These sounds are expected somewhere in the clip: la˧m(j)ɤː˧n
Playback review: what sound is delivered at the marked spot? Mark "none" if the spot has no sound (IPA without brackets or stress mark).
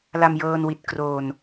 j